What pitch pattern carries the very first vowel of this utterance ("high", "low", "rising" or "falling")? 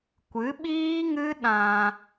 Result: rising